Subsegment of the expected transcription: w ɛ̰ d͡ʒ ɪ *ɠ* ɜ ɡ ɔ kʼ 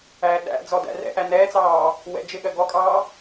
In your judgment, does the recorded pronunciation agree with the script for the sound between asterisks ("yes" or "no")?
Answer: yes